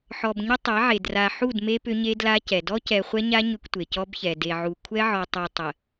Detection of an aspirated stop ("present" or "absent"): present